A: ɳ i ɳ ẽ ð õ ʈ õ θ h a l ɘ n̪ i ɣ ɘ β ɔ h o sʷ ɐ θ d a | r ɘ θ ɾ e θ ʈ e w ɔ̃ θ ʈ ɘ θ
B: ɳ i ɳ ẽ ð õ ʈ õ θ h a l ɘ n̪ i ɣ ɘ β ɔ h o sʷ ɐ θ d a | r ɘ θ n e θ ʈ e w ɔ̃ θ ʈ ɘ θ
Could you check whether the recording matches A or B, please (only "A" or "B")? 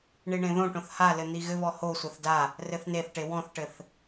B